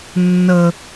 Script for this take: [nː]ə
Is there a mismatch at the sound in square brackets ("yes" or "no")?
no